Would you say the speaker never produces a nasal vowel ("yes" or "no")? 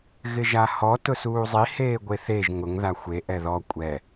yes